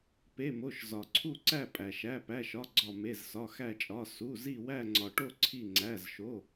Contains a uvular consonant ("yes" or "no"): no